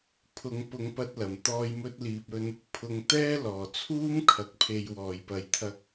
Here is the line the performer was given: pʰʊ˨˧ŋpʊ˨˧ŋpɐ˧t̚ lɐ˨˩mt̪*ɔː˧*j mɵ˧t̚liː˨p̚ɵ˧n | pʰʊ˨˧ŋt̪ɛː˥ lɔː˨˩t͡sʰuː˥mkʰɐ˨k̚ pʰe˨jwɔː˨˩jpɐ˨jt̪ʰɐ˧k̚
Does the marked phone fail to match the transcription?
no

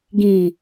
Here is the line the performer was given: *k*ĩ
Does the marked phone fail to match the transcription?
yes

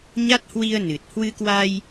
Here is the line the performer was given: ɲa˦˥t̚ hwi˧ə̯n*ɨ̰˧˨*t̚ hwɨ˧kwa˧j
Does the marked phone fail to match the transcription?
yes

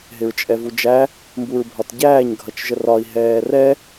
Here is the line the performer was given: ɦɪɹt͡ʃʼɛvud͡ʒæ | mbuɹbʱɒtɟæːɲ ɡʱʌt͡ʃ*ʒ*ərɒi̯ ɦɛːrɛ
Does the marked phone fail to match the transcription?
no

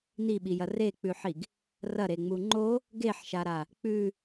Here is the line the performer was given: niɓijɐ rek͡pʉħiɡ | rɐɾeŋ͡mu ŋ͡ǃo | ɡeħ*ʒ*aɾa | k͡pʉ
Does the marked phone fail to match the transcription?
yes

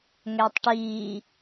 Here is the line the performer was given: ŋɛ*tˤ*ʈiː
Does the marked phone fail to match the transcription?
no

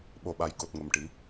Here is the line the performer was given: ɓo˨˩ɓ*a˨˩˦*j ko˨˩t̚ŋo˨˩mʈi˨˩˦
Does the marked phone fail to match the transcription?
yes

